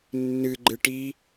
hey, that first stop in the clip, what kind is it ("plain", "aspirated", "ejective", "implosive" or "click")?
click